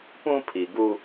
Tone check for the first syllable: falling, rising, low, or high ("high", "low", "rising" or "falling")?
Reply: high